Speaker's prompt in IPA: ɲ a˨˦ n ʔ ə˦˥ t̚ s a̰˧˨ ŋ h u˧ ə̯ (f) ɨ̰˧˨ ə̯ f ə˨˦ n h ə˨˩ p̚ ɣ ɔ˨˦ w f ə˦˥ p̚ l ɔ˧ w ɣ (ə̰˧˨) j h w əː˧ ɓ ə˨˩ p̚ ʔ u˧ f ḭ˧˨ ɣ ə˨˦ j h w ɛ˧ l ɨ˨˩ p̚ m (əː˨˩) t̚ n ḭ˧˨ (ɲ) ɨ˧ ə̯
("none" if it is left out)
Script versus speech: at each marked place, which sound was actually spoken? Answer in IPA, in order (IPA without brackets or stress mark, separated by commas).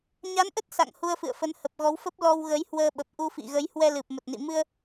f, ə˨˦, ə˨˩, m